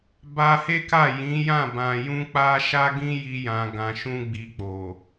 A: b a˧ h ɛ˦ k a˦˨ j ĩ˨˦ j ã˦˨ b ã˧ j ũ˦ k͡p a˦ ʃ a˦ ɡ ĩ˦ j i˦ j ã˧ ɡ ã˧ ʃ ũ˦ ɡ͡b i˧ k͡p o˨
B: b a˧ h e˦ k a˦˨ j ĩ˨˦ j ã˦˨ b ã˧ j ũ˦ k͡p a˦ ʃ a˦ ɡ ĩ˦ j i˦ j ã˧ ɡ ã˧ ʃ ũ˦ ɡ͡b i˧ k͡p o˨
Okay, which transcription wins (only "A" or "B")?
B